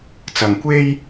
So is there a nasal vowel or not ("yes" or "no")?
no